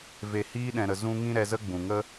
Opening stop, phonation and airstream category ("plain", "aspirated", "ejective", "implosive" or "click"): implosive